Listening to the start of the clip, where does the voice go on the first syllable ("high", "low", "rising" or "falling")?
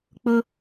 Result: high